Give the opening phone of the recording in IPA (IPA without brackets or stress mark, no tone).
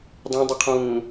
dˤ